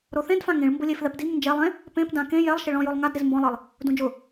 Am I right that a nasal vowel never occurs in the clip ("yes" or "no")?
no